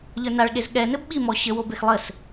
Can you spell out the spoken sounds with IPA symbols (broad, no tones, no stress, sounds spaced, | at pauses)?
ʎ ə˞ n a ɭ ɠ e z ɠ ɛ n ɘ b ɓ i m ɔ ɕ ɘ w o b e x lˠ ɘ s